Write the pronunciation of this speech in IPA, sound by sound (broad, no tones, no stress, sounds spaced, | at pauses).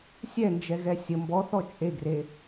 sʲ ɛ n d͡ʒ ɛ ɣ ɛ sʲ ə m b ɔ θ ɔ t͡ʃʼ e ɡ r e